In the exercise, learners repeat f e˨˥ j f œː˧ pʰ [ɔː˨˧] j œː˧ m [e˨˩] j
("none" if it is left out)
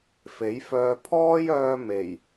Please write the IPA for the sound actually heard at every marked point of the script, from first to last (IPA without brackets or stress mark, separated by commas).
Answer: ɔː˥, e˨˩